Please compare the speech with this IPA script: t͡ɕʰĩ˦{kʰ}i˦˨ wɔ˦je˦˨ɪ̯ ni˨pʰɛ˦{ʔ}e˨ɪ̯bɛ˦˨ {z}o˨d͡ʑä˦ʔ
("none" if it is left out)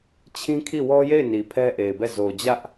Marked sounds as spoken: kʰ, ʔ, z

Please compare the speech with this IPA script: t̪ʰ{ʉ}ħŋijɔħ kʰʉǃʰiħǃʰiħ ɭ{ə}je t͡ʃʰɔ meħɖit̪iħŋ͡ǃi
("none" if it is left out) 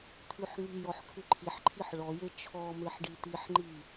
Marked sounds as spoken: ʉ, ɔ

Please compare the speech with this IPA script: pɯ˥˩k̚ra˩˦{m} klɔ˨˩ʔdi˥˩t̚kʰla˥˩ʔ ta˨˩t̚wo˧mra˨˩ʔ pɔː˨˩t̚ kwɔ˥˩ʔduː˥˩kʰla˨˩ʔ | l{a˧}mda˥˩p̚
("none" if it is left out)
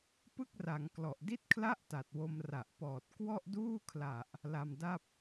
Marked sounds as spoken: ŋ, a˧

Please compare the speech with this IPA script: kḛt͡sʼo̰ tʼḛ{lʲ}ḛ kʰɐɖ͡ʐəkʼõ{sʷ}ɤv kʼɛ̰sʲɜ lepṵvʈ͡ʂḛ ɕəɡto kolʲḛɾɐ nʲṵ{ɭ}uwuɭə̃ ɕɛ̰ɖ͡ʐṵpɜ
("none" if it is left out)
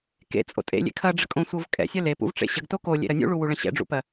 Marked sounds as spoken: lʲ, sʷ, ɭ

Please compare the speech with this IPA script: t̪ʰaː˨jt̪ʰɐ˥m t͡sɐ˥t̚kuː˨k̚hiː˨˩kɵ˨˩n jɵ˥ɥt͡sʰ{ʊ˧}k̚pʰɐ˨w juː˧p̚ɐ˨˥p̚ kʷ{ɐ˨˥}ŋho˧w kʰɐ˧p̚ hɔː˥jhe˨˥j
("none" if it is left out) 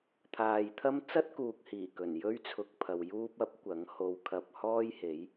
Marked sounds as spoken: ʊ˧, ɐ˨˥

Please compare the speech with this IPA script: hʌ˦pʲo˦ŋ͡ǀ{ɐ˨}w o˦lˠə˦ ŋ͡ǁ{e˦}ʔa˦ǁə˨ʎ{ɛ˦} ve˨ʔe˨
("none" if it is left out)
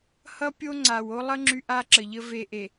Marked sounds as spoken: a˨, y˦, ə˦

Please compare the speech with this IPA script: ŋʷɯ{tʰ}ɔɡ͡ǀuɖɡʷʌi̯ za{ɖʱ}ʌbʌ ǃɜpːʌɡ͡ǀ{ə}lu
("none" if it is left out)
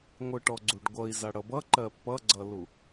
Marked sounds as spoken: ʈ, ɽ, ʌ

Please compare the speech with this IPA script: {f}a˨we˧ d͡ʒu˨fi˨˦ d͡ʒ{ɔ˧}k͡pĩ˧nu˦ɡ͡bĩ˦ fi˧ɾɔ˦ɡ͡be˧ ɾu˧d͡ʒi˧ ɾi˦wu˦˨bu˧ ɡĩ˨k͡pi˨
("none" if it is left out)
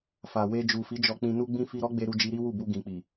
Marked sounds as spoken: f, ɔ˧

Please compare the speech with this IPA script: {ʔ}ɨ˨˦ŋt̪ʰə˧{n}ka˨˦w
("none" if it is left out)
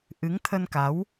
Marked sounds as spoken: ʔ, n

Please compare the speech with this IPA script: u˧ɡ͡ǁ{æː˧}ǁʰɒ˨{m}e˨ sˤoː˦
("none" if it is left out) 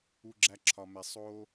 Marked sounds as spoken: æ˧, m

